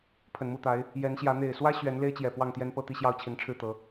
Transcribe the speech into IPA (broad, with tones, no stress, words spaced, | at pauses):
pʰə˨˩nmu˥˨t̪a˨˦ɪ̯ | jɛ˨˦nɕjä˨˦ n̪e˨˩ɪ̯swä˦ ɕɥɛ˨˦nle˦ɪ̯t͡ɕjɛ˨˩ pwɑ˥˨ŋt̪jɛ˦npɤ˥˨ t̪i˥˨ɕjɑ˥˨ʊ̯t͡ɕʰi˨˦nʈ͡ʂʰɻ̩˥˨ t̪ɤ˨˦